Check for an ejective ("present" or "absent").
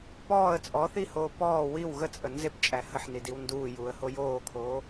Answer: present